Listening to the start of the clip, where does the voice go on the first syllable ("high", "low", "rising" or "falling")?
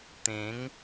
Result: rising